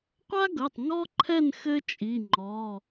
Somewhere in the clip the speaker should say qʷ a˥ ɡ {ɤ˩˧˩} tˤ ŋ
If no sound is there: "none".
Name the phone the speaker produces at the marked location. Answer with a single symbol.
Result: ɤ˩˧˩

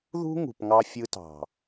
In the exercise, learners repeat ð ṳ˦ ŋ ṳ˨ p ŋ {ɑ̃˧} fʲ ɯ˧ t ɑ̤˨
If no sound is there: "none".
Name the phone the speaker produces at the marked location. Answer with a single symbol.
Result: ɑ˧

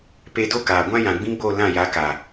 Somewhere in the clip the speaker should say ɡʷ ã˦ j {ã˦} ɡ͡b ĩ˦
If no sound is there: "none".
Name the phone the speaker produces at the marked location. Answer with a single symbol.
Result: ã˨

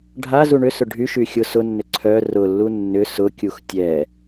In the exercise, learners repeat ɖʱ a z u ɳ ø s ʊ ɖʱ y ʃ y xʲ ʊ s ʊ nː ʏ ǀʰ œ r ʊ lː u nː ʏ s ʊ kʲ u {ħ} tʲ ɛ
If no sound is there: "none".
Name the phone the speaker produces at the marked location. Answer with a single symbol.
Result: x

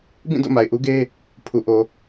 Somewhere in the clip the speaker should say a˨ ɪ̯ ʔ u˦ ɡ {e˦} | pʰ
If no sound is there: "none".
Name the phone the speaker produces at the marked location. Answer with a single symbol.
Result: e˦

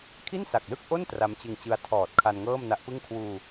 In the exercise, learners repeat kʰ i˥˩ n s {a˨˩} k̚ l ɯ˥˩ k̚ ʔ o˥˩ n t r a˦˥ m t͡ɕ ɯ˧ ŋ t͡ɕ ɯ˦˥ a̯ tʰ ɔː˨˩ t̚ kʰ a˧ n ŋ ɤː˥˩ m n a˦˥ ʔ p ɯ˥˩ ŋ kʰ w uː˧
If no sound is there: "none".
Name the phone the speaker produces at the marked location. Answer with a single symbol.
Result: a˨˩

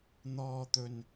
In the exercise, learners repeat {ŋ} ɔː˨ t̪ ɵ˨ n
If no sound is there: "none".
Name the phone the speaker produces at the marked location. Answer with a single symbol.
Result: n̪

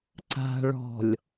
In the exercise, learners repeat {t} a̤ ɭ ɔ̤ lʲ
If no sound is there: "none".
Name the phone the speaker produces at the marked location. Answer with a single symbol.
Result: ǀ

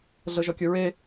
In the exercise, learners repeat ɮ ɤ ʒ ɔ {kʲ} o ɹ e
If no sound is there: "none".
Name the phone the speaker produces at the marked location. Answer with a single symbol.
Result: kʲ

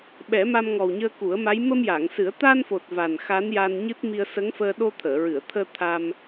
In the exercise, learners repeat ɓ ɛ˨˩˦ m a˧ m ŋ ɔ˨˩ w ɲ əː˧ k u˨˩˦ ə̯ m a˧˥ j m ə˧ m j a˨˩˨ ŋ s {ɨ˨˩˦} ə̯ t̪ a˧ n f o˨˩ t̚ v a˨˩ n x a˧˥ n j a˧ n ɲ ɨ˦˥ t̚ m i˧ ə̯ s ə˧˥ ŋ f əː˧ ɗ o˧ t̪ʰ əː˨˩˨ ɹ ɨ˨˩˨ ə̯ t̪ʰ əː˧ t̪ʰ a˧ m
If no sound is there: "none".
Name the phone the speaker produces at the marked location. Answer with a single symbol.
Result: ɨ˨˩˦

